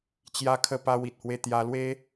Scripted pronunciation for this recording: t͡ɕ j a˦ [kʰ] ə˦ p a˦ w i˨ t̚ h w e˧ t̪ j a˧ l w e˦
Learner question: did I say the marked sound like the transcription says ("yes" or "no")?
yes